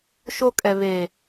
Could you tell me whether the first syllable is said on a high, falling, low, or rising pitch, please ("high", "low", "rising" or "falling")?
high